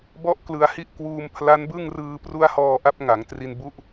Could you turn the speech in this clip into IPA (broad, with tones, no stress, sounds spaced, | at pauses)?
b ɔ˥˩ ʔ k l ɯ˧ a̯ h i˥˩ ʔ k w uː˧ m pʰ l a˦˥ n b ɯ˥˩ ŋ r ɯː˧ p r u˦˥ a̯ h ɔː˧ ʔ a˦˥ p̚ ŋ a˩˦ ŋ t r i˧ n b u˦˥ ʔ